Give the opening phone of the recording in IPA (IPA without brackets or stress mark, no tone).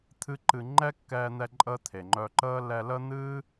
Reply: t̪ʰ